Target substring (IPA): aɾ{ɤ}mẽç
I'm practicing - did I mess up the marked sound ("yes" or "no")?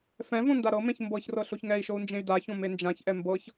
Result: no